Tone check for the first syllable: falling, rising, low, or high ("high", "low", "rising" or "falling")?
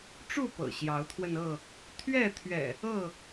falling